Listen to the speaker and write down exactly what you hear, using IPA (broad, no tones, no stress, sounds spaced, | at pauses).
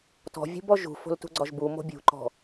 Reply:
t ɔ̤ vʲ ṳ b ɔ ʒ ṳ f o̤ l t ṳ ɡ͡ǀ ɒ ʒ b u m o̤ bʲ ṳ ǃ ɔ̤